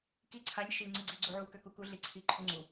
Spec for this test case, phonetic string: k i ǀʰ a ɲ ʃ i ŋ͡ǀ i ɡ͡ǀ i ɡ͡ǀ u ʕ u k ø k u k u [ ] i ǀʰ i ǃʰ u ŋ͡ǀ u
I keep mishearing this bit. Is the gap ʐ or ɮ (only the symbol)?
ɮ